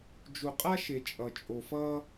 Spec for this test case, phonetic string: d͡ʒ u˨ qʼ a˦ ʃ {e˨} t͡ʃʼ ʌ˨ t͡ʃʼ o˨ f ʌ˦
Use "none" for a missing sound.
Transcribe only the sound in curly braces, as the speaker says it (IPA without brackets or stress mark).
e˨